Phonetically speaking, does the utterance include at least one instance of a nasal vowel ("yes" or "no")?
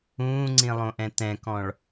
yes